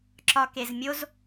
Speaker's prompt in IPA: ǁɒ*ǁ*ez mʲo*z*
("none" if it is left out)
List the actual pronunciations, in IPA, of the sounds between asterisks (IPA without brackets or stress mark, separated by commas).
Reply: k, z